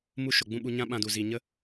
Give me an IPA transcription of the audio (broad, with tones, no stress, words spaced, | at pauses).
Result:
mu˦ʃo˨ɡ͡bũ˦ ɓu˧ɲã˦ɓã˧du˨ zi˨ɲə˦